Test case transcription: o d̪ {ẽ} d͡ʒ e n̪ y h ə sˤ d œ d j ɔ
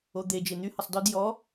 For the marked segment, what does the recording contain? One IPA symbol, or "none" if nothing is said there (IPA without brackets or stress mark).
e